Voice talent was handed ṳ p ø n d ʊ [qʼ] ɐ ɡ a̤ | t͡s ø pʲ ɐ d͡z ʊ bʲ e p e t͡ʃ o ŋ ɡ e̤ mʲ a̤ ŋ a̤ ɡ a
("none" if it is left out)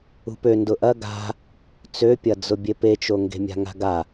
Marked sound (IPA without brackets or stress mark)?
ʔ